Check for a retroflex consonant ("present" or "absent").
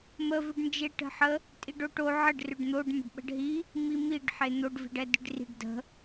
present